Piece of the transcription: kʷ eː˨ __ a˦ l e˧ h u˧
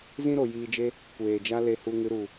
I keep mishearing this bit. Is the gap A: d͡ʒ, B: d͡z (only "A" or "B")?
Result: A